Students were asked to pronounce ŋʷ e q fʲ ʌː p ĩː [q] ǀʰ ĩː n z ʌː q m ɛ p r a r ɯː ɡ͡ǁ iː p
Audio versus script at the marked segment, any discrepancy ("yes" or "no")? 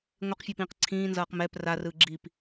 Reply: no